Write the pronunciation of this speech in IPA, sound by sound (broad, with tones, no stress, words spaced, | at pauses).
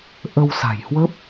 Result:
ʔə˧w sa̤˨˩jhwə˦˥p̚